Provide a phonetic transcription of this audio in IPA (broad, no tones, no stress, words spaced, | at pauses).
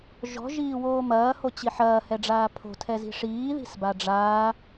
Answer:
ʒɔ̤ʒiː woːmɐːhot͡ɕi ħɐːhɛɖ͡ʐaː pʰo̤tʰɛzi̤ ʂiːði̤s baɖ͡ʐaː